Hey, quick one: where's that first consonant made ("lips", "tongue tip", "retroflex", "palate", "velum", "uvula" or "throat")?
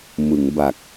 lips